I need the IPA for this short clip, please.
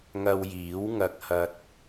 ŋ ɐ˧ w j iː˨˥ w ŋ ɐ˧ k̚ h ɐ˧ t̚

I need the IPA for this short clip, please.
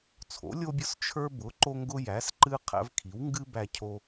t͡sʰ o̰˩˥ lʲ o˦ bʲ ʊ˦ s t͡ʃʰ ə˞˦ b ʊ˩˥ ǃ o˦ ŋ ɡ ʊ˦ j æ˩˥ s ǃ ɨ˦ qʰ æ̰˦ v kʰ i˩˥ w ŋ ɡ ɨ˦ b æ˦ cʰ o˦

